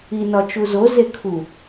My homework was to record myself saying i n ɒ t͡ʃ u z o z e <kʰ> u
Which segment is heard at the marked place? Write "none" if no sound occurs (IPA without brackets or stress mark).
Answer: kʰ